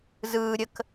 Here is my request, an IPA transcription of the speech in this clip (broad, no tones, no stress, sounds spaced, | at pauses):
z ɯː ɾʲ ə k